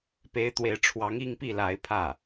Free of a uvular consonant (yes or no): yes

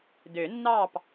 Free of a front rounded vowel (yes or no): no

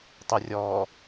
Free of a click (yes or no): yes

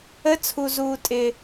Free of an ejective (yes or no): no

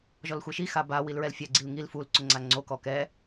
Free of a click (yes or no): no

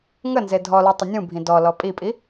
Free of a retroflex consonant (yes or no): yes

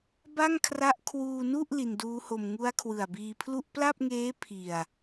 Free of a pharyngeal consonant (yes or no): yes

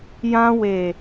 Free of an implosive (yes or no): yes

